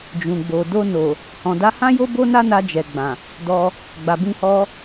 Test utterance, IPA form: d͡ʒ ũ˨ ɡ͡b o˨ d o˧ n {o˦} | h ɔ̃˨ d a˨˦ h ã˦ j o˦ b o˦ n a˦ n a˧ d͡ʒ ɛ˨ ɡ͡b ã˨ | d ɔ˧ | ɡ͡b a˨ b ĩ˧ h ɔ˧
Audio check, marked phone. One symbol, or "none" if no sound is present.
o˨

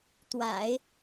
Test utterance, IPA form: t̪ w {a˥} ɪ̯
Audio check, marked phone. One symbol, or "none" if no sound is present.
a̰˨˩˦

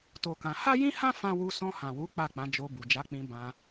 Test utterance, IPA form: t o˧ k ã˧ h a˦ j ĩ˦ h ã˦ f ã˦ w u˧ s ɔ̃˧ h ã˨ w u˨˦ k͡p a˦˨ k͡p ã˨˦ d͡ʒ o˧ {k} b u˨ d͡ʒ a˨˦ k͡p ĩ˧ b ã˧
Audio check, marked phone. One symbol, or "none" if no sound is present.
none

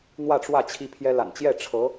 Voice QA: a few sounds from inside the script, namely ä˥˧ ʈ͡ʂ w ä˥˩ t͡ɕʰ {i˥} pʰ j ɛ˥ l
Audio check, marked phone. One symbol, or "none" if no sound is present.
i˥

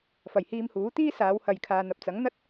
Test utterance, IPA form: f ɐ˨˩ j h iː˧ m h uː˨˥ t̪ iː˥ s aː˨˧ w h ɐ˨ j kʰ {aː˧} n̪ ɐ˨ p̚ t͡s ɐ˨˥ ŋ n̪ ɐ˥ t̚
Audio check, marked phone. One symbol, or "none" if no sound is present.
aː˨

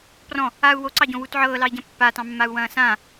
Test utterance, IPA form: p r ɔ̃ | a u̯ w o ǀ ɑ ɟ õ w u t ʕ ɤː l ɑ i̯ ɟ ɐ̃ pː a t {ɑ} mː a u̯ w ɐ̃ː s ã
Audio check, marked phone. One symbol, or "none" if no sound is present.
ɑ̃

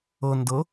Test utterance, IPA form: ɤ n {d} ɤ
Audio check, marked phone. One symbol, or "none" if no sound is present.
d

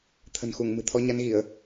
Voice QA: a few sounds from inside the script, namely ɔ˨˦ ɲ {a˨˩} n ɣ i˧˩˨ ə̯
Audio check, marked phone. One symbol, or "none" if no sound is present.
a˨˦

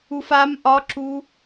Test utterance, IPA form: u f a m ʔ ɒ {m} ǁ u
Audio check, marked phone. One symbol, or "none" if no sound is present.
none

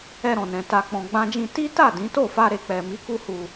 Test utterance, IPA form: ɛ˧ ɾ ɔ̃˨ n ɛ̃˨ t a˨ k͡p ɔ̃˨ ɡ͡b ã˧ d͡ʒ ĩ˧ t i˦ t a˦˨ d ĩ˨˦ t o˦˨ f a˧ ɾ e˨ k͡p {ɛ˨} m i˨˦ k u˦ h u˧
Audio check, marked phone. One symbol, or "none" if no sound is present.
ɛ˨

